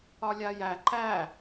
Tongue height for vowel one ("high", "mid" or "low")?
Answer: low